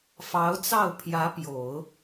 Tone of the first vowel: rising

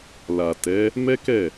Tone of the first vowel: low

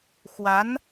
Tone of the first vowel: rising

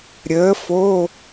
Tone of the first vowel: rising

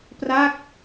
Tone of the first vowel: falling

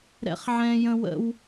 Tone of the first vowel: high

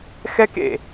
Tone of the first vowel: high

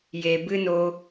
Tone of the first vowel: low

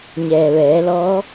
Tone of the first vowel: low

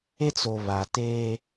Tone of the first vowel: high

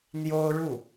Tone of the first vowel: high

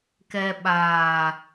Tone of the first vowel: low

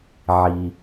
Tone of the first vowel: low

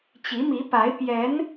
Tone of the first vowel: rising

